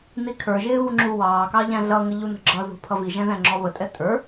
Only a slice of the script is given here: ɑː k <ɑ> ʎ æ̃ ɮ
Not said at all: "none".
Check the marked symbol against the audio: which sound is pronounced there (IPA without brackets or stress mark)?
ɑ